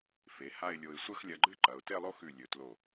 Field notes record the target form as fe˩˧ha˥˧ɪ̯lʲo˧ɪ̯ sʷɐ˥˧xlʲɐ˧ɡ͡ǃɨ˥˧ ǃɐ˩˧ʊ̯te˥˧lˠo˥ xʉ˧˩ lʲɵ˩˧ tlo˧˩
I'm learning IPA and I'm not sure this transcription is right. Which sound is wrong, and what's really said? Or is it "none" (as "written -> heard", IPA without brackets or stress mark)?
none